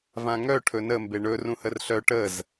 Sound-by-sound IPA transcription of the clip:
v ã ŋ œ ʈʰ ɵ n ə m b e ɳ ɵ r ũ h ə r ɬ œ ʈ ə z

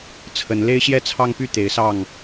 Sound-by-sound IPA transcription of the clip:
t͡sʰ ə˨˦ n l e˦ ɪ̯ ɕ j ɛ˥˨ t͡sʰ ɑ˦ ŋ p y˥˨ t̪ e˨˦ ɪ̯ s ɑ˥˨ ŋ

